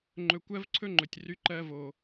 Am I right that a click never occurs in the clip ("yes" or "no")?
no